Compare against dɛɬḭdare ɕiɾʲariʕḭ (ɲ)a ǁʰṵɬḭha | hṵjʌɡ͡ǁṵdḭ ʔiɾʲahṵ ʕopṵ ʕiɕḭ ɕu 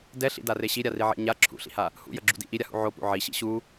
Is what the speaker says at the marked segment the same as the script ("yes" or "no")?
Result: yes